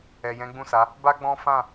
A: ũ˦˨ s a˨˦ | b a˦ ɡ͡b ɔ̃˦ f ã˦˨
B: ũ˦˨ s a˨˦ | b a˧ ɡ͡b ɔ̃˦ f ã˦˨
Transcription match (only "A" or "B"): A